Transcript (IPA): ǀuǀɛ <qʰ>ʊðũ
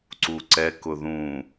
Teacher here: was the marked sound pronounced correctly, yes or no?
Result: no